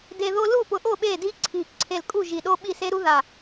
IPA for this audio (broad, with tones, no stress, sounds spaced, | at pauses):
d e˧ ð o˦˥ l u˥˩ p ʊ˧˩ ʔ o˥˩ ɓ e˥˩ d i˦˥ ǀʰ i˧˩ ǀʰ e˧˩ l kʼ u˥˩ ʒ i˧˩ ɗ o˦˥ ɓ i˥˩ s e˦˥ ɾ u˦˥ ð a˧˩